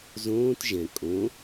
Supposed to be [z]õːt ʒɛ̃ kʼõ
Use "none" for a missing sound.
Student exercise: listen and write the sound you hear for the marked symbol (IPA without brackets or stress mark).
z